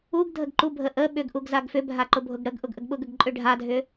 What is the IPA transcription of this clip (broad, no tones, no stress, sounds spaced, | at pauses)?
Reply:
u ɡ dʱ ə ɡ ǃ u bʱ ə ʔ ə ɓ ʏ ɡ ʔ u ɡ z a ɡ f ʏ bʱ a ǃ ʊ bʱ ʊ ɡ ɽ ə ɡ ʔ ʊ ɡ ʔ ə ɡ ɓ ʊ ɡ ə ɡ ǃʼ ʏ ɖʱ a dʱ ʏ